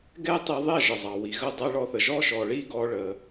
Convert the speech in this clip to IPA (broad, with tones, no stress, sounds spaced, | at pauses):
ɡ ɛ˦ tˤ i˧ ðˤ ɛ˦˨ ʒ ə˨ zˤ ɑ˨ w i˨ ɣ ə˦˨ dˤ ɛ˦ ɭ ɔ˧ θ ə˨ ʒ ɔ˦ ʃ ɔ˨ ɭ i˦ ɡ ɔ˧ ɭ ə˧